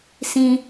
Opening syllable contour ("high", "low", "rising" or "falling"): high